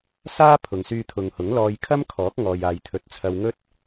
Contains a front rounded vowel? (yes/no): yes